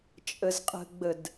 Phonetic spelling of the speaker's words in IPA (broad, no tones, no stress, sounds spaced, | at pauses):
t͡ʃʼ ə z qʼ ə̤ ɡ͡b ə d